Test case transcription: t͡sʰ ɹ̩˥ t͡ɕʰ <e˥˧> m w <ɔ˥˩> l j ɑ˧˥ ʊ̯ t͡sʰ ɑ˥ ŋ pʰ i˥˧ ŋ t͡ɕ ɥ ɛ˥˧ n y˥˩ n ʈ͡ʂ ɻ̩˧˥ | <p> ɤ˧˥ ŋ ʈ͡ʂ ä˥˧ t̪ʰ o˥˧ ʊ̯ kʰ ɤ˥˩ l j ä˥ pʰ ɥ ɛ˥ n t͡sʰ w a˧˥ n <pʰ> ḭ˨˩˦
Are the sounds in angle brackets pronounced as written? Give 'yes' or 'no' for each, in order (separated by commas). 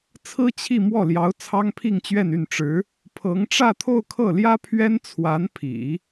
no, yes, no, yes